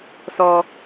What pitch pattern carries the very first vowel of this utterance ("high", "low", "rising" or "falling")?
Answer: low